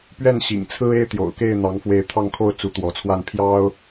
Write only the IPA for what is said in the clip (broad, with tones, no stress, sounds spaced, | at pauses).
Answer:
p ɥ ɛ˥˨ n ɕ ḭ˨˩ ŋ t͡sʰ ɹ̩˦ e˦ ɪ̯ t̪ j o̰˨˩ ʊ̯ k e˥˨ ɪ̯ n̪ ɑ˨˦ ŋ f w e˨˦ ɪ̯ t̪ʰ ɑ˥˨ ŋ kʰ o˥˨ ʊ̯ t͡s u˨˦ t̪ w ɔ˨˦ t͡sʰ w a˥˨ n pʰ j ɑ˦ ʊ̯